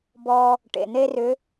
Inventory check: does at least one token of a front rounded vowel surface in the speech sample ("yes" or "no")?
yes